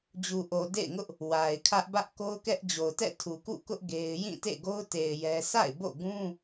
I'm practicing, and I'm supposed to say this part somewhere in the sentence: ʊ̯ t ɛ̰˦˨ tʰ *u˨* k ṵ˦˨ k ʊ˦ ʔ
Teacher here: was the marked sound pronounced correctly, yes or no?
yes